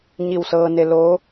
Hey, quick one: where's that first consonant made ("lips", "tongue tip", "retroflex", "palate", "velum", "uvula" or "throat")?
palate